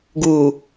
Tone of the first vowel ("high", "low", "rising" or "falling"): low